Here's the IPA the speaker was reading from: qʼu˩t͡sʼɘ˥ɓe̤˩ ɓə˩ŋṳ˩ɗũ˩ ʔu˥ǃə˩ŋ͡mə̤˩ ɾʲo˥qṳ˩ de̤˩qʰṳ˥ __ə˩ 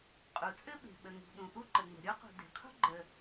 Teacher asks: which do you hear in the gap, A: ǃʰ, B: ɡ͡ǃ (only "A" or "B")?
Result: B